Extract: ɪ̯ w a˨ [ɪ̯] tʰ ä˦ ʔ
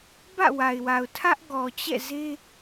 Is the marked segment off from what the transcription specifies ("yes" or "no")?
yes